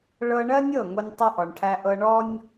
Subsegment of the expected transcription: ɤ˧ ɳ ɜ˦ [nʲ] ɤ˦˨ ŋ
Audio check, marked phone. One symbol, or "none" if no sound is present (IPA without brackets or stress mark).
nʲ